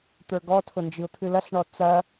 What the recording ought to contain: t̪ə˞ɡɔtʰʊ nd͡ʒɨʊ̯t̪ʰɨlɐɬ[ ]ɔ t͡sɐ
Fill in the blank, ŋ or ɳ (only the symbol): ɳ